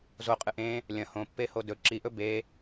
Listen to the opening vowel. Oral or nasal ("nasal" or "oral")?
oral